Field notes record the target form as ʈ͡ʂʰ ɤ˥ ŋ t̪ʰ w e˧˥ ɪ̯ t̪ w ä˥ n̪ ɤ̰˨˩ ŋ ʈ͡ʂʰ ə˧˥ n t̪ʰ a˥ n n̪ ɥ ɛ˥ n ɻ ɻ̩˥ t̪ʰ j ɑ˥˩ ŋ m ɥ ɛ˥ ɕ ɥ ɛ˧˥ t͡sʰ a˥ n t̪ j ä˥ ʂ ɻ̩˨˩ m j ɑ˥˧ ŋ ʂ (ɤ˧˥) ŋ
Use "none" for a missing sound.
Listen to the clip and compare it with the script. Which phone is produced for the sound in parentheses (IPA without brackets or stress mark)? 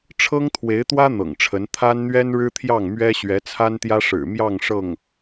ɤ˥˩